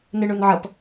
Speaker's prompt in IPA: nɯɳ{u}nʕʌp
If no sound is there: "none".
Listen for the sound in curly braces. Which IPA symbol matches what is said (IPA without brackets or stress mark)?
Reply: u